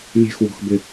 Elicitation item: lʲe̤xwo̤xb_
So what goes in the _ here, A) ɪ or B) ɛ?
A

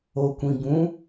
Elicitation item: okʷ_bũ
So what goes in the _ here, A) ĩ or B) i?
A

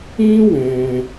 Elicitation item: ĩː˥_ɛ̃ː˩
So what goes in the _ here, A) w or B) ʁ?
A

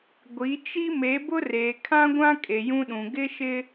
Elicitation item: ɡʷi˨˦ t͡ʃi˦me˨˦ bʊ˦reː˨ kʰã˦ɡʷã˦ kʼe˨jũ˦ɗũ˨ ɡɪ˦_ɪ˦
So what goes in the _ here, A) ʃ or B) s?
A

